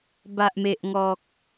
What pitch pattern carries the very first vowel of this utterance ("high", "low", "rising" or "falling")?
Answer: low